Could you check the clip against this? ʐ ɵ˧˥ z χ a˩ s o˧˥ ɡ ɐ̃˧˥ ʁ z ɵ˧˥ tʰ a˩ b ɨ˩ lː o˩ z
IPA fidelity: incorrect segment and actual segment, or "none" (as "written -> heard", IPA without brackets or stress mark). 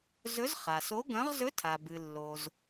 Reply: ʐ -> z